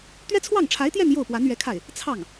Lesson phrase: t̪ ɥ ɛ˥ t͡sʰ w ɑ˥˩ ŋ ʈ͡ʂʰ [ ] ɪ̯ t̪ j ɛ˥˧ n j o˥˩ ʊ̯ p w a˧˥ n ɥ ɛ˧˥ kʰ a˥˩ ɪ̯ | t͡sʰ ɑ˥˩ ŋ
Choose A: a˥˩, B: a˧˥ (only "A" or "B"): B